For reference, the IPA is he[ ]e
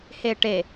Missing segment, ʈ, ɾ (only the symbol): ʈ